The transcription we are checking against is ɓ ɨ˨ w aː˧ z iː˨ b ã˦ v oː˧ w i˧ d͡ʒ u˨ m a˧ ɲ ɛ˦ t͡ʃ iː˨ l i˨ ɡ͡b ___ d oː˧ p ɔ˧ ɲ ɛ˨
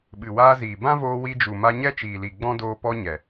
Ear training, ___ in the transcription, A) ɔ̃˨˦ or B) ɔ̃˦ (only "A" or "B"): B